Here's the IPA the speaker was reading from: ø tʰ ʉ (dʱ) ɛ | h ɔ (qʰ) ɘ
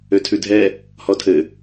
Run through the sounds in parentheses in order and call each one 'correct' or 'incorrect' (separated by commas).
correct, incorrect